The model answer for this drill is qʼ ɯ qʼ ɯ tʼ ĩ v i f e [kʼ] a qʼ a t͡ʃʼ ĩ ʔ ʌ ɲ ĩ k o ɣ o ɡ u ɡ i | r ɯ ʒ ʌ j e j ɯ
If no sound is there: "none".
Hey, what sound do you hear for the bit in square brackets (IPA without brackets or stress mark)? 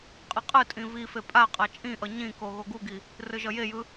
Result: pʼ